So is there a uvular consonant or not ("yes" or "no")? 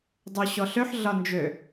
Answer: no